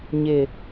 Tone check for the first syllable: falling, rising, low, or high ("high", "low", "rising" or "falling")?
low